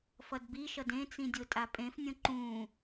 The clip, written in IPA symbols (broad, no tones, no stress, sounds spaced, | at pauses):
f ʌ d b i ʃ ʌ d ẽ t͡s ĩ dʲ o tʼ a pʼ ẽ f nʲ õ ǃ ũ